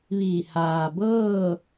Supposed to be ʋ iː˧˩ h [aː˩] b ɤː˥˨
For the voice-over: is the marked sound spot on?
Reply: yes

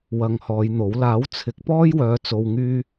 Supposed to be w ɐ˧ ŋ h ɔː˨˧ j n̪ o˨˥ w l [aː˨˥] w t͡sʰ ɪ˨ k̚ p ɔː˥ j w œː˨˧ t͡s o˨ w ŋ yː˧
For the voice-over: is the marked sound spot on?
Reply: yes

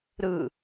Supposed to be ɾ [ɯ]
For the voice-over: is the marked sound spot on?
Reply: yes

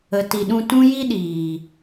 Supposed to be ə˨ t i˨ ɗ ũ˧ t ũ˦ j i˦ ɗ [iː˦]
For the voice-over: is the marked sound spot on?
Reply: no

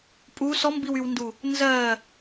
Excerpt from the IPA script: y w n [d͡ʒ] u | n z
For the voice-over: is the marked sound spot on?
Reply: no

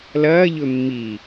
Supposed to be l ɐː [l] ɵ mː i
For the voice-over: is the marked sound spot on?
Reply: no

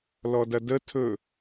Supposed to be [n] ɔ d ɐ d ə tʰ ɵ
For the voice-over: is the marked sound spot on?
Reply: no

